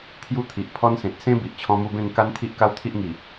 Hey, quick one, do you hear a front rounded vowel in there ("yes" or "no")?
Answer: no